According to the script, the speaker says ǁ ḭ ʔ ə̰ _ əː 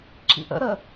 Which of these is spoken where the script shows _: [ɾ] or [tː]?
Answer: ɾ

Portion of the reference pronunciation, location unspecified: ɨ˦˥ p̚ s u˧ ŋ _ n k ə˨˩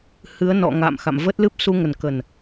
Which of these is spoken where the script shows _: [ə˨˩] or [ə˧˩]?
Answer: ə˨˩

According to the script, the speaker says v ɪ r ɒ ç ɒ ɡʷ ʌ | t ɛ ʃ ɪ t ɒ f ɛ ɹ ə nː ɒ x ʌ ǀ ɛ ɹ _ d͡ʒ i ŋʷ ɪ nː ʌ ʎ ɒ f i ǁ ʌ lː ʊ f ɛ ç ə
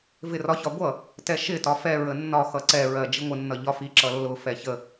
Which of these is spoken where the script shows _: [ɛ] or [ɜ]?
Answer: ɜ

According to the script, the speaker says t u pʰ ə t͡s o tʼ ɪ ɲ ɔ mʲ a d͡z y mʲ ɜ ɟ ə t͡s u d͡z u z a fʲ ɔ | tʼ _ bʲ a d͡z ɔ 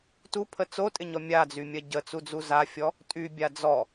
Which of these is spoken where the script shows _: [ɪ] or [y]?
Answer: y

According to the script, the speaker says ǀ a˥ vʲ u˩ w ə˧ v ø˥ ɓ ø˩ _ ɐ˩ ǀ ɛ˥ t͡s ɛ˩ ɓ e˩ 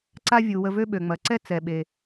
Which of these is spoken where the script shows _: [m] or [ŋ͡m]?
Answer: ŋ͡m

